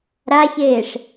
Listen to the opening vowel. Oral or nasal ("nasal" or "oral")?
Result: oral